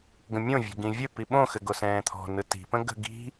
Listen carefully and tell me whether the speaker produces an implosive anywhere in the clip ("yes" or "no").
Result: yes